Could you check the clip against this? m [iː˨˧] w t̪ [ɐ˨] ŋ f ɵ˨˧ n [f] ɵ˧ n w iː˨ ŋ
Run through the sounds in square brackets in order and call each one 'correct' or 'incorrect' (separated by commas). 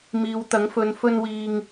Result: correct, incorrect, correct